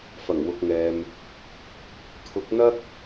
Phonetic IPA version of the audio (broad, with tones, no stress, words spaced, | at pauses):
fɐ˨˩ŋwʊ˨k̚ŋɛː˨m | t̪ʰʊ˨˥k̚n̪ɐ˥k̚